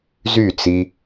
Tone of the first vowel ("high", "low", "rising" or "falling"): falling